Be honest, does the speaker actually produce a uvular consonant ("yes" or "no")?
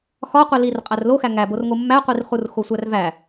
yes